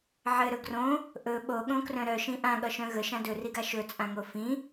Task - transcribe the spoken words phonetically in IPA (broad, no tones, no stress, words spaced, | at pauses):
ʕɘɾɵ ɡrõ | ʔɵ ɓoɠõkrœ̃ ɾœʃĩ ʔãɠʌʃœ̃ ɣəʃã dɵriɡa ʃɵt͡sʼãŋo fĩ